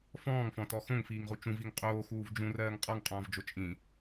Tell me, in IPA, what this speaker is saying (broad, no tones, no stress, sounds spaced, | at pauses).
f ɔ̃ː ŋ f ɔ̃ t ɔ x õ ŋ f iː ŋ ʁ u t͡ʃ ũ v i ŋ qʼ oː x uː v d͡ʒ ũ r ɜː ŋ qʼ ɔ ŋ qʼ ɔ̃ː v d͡ʒ o t͡ʃʼ ĩ